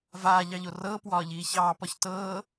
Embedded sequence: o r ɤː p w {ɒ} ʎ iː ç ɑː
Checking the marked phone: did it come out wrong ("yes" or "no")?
yes